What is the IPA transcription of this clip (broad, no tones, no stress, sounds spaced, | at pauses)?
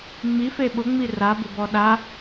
ŋ͡m i f e ɓ ʊ ŋ͡m i r a b ɪ b ɔ ɗ a